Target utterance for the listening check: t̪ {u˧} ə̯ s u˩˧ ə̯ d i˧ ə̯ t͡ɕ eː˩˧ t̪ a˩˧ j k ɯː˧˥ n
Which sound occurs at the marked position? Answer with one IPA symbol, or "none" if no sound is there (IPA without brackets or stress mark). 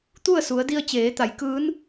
u˥˨